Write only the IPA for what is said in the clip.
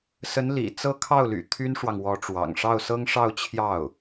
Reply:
s ə˧˥ n l ḭ˨˩ t͡s ɤ˥˧ kʰ ɑ˥˩ ʊ̯ l y̰˨˩ t̪ʰ y˥ n ʂ w ɑ˨ ŋ w ɔ˧˥ ʈ͡ʂ w ɑ̰˨˩ ŋ ʂ ɑ˥˩ ʊ̯ s ɤ˥ ŋ ʂ ɑ˥˧ ʊ̯ t͡ɕʰ j ɑ˥˩ ʊ̯

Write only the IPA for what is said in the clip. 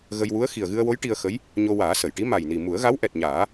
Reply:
ɣ ə˧ j w u˧˥ ə̯ x i˨˩ ə̯ ɣ ɨ˧ ə̯ w o˧˥ j ʈ i˧ ə̯ x ə˧˥ j | ɲ o˧ w aː˨˩˦ s ə˨˩˨ j ʈ i˧˥ m a˨˩ j n i˨˩ m u˨˩˦ ə̯ ɣ a˧˥ w ʔ ɛ˨˩ t̚ ɲ aː˨˩˦

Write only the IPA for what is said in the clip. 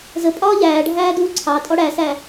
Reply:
z ə pʼ ɒː ʎ æː ɖʱ æː d uː ǀʰ ɑ tʼ ɔ ɽ æ s æ

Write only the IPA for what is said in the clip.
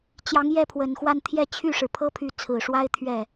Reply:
t͡ɕ j ɑ˧˥ ŋ j ɛ˥˩ pʰ w ə˨˩ n x w a˥˧ n t̪ʰ j ɛ˥˧ t͡ɕʰ y˥˩ ʂ ɻ̩˩ pʰ ɤ˥ pʰ y˧˥ t͡sʰ ɹ̩˨˩ ʂ w a˥ ɪ̯ t̪ʰ ɥ ɛ˥˩

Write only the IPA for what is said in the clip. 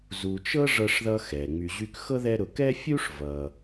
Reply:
z u˨ t͡ʃ ɤ˥ ʐ ɤ˦ ʂ ð ʌ˦ x ɛ˩ ŋ͡m y˨ ʑ y˦ k x ɤ˥ ð ɛ˦ ɾ ʊ˨ k ɛ˥ fʲ u˥ ʂ v ʌ˩

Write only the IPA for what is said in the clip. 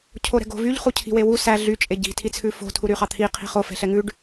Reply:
cʰ o ɾ ɛ̤ ɡ o̤ v y ʎ χ u cʰ i̤ w e w u s æ ɮ y t͡ʃʼ e ɟ i̤ tʰ i t͡sʰ ʉ f o̤ tʰ u ɾ y χ ɑ t̪ʰ i qʰ i̤ χ o f ɛ̤ ɬ ɛ ŋ ʉ ɖ

